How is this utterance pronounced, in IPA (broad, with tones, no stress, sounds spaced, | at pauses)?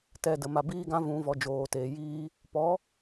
t ɛ˨ d ə˨ m a˨ b iː˧ ɡ ã˧ v ũ˨ v ɔ˨ d͡ʒ oː˨ t eː˨ j iː˧ | p ɔ˨˦